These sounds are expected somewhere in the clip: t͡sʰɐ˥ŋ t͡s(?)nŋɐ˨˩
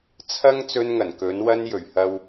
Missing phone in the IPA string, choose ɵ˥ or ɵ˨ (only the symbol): ɵ˥